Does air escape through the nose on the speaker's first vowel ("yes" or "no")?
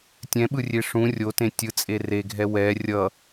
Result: yes